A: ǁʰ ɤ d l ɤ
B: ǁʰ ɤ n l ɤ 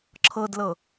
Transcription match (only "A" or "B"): A